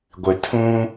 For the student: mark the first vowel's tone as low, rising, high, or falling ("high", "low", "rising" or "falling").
low